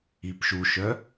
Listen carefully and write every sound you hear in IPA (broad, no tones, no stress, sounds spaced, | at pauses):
i p ʃ u ʃ œ